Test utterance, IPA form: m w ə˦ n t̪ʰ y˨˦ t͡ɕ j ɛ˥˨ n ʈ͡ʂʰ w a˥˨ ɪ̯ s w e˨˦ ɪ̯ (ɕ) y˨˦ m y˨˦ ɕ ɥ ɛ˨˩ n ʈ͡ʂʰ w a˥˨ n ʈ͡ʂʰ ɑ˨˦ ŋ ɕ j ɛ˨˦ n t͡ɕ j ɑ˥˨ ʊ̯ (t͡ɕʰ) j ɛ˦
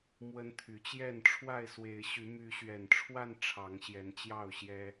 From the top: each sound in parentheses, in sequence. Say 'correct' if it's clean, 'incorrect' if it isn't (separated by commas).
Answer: correct, incorrect